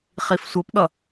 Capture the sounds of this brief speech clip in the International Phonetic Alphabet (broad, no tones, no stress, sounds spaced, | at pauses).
χ i f sʷ ʌ p ɠ ʌ